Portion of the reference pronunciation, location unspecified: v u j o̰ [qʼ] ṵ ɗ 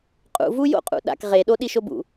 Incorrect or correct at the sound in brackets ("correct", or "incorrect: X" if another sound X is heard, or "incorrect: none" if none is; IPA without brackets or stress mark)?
correct